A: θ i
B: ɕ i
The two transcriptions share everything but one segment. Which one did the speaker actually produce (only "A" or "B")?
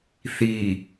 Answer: A